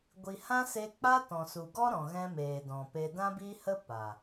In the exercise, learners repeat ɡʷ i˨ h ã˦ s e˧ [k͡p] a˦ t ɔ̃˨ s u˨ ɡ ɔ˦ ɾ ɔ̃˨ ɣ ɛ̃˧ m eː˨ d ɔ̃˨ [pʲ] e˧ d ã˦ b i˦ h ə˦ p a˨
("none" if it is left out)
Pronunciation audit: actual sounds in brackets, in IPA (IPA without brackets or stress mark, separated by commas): k͡p, p